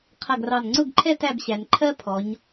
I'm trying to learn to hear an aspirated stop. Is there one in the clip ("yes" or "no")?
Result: yes